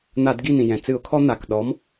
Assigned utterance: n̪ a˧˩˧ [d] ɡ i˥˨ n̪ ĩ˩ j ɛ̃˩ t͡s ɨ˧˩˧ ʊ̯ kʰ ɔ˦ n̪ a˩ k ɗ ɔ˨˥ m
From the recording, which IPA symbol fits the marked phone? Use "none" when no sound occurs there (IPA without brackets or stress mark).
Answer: d